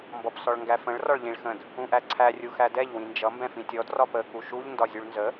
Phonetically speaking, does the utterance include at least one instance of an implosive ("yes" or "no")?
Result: no